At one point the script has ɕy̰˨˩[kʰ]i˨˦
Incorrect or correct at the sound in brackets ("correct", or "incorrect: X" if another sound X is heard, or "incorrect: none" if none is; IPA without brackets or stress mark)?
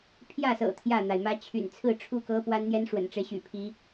incorrect: pʰ